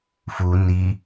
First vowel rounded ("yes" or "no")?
yes